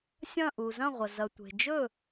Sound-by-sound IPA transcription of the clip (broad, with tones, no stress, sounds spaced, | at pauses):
sʲ ɐ̃˥˩ ʔ u˩ z ɐ̃˥˩ ʁʷ ɐ˩ z ɐ˩ tʷ e̤˩ d͡ʒ ɵ˥˩